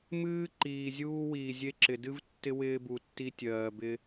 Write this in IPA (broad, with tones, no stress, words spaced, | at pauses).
mɨː˦ǃiː˨zʲuː˦ wiː˨zʲe˦ǁɪ˨ dɨ˦vtːɪ˦ wɪː˦bu˨tːi˦ tʲɜː˨bɪ˦